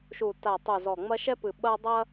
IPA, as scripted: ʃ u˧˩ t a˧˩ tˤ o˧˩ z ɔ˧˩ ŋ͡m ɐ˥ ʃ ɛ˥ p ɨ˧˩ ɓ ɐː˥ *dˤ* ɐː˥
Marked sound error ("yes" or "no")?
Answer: no